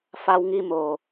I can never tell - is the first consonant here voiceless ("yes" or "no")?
yes